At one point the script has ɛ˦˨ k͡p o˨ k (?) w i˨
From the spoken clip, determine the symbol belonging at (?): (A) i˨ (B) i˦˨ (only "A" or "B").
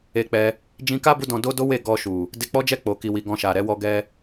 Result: A